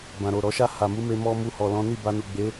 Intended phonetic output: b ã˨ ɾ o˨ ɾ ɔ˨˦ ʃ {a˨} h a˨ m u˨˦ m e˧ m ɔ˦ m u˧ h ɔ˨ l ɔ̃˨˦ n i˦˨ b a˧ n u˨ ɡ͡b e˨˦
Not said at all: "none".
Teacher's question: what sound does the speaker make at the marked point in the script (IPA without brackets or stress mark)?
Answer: a˦˨